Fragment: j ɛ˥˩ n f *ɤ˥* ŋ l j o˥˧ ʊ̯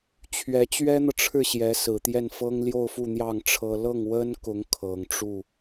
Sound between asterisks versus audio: correct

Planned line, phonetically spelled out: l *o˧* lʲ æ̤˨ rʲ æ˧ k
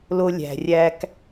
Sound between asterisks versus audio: correct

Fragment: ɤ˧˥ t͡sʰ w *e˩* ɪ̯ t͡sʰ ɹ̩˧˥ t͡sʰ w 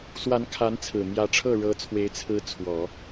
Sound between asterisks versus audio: incorrect: e˧˥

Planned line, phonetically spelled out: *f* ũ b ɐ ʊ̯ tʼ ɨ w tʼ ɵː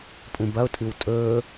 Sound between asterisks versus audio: incorrect: pʼ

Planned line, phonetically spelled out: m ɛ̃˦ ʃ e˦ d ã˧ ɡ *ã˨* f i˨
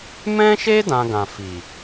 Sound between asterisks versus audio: correct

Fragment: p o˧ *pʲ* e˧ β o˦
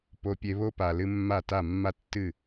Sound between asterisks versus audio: correct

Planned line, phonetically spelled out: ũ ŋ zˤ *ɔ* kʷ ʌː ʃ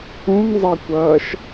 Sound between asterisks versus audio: incorrect: ʌ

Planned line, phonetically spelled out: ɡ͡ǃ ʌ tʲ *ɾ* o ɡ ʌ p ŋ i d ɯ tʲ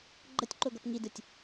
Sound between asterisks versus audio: incorrect: ǃ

